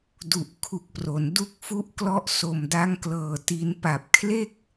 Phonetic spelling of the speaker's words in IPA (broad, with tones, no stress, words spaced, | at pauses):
du˨˩ʔkʰu˨˩k̚pro˩˦n du˦˥k̚fu˦˥ʔklɔ˦˥ʔ so˨˩mda˦˥ŋklɤː˨˩ ti˧n pa˨˩p̚kʰle˥˩k̚